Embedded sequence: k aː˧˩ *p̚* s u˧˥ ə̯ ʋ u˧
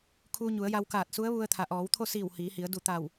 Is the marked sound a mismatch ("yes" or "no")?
yes